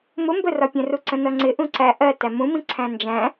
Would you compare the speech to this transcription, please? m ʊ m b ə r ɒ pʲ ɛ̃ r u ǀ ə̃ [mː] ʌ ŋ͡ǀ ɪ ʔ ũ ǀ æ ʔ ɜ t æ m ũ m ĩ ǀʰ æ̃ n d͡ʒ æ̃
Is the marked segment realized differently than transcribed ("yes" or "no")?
yes